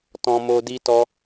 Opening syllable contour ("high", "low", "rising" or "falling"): high